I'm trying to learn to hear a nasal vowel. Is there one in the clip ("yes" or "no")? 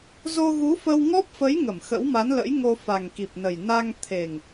no